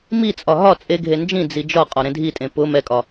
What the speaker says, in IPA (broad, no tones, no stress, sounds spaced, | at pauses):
m i t͡sʼ ɒ ɦ ɒ t͡sʼ e ɡʱ e n d͡ʒ ĩ d͡z i d͡ʒ ɒ qʼ ɒ ɾ ẽ dʱ i tʼ ẽ p ʊ m ɛ kʼ ɒ